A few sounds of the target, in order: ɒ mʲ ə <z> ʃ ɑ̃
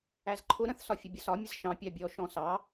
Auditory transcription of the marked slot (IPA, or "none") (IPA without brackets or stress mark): z